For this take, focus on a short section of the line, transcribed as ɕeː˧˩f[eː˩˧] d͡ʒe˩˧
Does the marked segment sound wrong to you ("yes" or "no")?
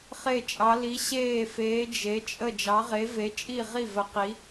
no